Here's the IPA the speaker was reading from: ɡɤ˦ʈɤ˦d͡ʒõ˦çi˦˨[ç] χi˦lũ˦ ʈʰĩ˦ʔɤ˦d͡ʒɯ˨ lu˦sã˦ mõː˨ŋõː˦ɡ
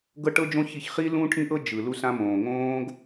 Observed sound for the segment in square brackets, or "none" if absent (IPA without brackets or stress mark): ç